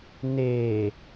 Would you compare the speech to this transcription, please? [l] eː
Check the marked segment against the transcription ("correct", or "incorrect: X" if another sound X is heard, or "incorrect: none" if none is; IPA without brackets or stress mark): incorrect: n